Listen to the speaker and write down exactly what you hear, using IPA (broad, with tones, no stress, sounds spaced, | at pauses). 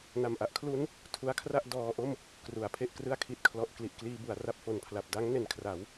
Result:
n a˨˩ m ʔ a˦˥ ʔ kʰ l u˦˥ n | tʰ u˦˥ a̯ kʰ r a˥˩ ʔ d ɔː˧ ʔ o˥˩ m | k r u˩˦ a̯ pʰ e˥˩ ʔ k r ɯ˥˩ a̯ kʰ i˨˩ t̚ kʰ l ɔ˨˩ ʔ k l i˨˩ ʔ k l iː˧ b u˩˦ a̯ r a˥˩ p̚ f o˨˩ n pʰ l a˨˩ p̚ d a˦˥ ŋ n e˨˩ n kʰ r a˩˦ w